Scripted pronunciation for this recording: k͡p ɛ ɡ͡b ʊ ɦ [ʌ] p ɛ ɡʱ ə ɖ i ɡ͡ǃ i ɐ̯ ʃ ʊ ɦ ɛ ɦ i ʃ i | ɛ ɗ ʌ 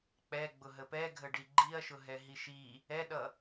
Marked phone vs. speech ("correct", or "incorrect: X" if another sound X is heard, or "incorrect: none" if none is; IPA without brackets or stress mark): incorrect: ə